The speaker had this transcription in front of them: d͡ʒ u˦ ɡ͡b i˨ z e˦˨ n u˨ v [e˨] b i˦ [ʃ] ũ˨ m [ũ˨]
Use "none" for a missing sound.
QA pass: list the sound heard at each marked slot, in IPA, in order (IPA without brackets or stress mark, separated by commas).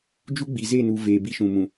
eː˨, ʃ, ũ˨